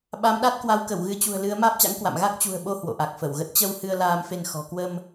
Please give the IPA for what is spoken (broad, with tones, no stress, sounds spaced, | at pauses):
ɓ a˨˦ m ɗ a˦˥ t̚ k w a˨˦ w k ə˧˩ w ɣ ɨ˨˦ t͡ɕ ṳ˨˩ ə̯ l ɨ˨˦ ə̯ m aː˦˥ p̚ t͡ɕ a̰˧˥ ŋ k w a̰˧˨ m ɣ a˦˥ k̚ t͡ɕ ṳ˨˩ ə̯ ɓ o˧ h w o̰˧˨ ʔ a˨˩ k̚ f ə˧˩ w ɣ ə˦˥ t̚ t͡ɕ ə˧ w h ɨ˧ ə̯ l aː˧ m f e˧ n x ɔ̤˨˩ k w ə˧ m